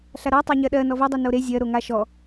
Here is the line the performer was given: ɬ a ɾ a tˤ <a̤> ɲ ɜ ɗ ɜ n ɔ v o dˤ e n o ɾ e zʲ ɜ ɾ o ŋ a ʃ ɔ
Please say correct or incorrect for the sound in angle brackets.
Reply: incorrect